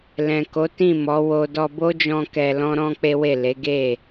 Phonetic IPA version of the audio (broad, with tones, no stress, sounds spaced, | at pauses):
l ɛ̃˨ k o˨˦ t ĩ˦˨ m ɔ˨˦ w o˧ d ɔ˧ b o˦ d͡ʒ ɔ̃˧ k ɛ˧ l ɔ̃˦ ɾ ɔ̃˦ k͡p e˦ w e˦˨ l e˨˦ ɡ e˦˨